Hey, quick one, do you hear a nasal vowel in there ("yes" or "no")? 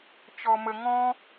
yes